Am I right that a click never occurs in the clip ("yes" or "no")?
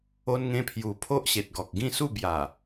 yes